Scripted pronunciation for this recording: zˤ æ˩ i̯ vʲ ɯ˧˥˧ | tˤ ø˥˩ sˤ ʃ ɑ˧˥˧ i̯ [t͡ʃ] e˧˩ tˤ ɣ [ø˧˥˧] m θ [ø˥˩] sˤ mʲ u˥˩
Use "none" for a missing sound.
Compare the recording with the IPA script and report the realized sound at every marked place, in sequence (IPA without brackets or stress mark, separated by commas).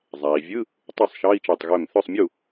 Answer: t͡ʃ, ø˧˩, ø˥˩